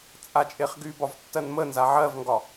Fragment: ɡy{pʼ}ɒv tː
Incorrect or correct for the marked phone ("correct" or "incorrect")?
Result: incorrect